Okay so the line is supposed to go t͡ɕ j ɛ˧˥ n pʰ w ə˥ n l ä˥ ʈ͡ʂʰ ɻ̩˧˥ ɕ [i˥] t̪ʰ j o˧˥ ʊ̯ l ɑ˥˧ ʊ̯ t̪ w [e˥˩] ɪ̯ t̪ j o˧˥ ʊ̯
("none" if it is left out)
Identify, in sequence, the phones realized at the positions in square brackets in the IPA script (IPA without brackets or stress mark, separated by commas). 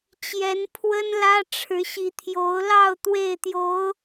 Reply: i˧˥, e˥˩